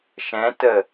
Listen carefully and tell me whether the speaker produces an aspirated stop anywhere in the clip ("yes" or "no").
no